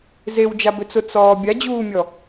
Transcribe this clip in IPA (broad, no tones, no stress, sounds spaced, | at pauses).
z e w d͡ʒ a b ø t͡s ʊ t͡s ɔː bʲ a d͡ʑ uː mʲ ɔ